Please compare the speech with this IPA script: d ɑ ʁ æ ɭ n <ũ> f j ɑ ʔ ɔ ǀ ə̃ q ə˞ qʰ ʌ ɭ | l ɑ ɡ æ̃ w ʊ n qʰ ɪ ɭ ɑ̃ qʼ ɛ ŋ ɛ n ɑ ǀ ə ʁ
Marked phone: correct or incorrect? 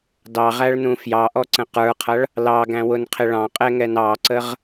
correct